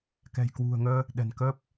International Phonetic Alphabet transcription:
k ɛ̤˨˩ j k w ṳ˨˩ ə̯ ŋ əː˧ | ɗ ɛ̤˨˩ n k əː˦˥ p̚

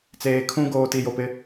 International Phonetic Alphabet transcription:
t͡s eː˨ kʰ ũ˦ ɡ oː˨ t i˨ j o˨ p ɪ˦

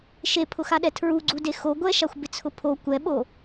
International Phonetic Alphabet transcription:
ʃ e pʰ ʊ x a ɗ ɛ tʰ ɹ u ɡ͡ǀ u d e x o ɡʷ ɛ ʃ a xʷ b ɪ t͡sʰ ʊ pʰ o kʷ ɛ ɓ o

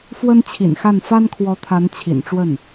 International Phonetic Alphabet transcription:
f w ə˥ n t͡ɕʰ ḭ˨˩ n x a˥˩ n f a˥ n kʰ w ɔ˧˥ t̪ʰ a˧˥ n t͡ɕʰ ḭ˨˩ n ʈ͡ʂ w ə˥˩ n

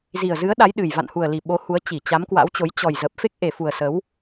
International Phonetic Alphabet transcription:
z i˨˩ ə̯ z ɨ˨˦ ə̯ ɗ a˨˦ j ɗ ɨ˨˩ j v a̰˧˨ n h u˨˩ ə̯ l i˨˩ ɓ o˨˦ h u˨˦ ə̯ t͡ɕ i˧˩ t͡ɕ a˨˦ m k w a̰˧˥ w t͡ɕ o˨˦ j t͡ɕ ɔ˨˩ j z əː˨˩ p̚ f e˦˥ k̚ ʔ e˨˩ f u˨˩ ə̯ s ə˨˦ w

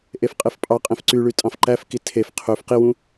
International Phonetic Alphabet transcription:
ʔ e f qʼ e f pʼ ɑ qʼ ẽ f ǀ y ɭ y tʼ ɑ̃ f ǃ æ f k i tʰ e f qʰ ø f q i w ũ

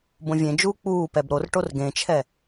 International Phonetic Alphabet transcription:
b õ vʲ ẽ d͡ʒ uː k͡p uː p ɛ b ɾ o r ʈ o r ɡ ẽ t͡ʃʰ ɛ

